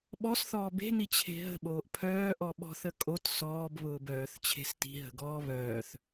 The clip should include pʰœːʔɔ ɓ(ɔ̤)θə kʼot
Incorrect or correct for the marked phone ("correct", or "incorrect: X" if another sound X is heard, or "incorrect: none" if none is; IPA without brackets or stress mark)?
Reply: correct